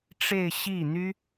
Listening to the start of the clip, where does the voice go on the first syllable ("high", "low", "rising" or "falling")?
falling